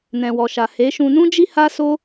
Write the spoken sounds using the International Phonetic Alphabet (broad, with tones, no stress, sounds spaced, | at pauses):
n ɛ̃˨ w ɔ˨ ʃ a˨ h e˨˦ ʃ ũ˧ n ũ˦ d͡ʒ i˦ h a˦ s o˦